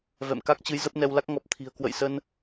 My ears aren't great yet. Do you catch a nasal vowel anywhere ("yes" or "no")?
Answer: no